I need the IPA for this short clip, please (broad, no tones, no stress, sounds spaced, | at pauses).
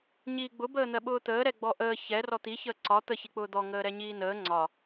ɲ iː ɡ͡b ʊ b əː n̪ ɜ ɓ ʊː t̪ əː ɾ ɛ ɡ͡b ɔ ʔ əː ç ɛ r ɔ t̪ i ç əː ǀ ɒ t̪ ə ç i k͡p ʊː d̪ ɔ ŋ əː ɾ ɛ ɲ iː n əː ŋ͡ǀ ɒ